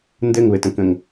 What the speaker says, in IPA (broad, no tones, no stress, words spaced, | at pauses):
ndɘŋβɘtə̃kə̃ŋ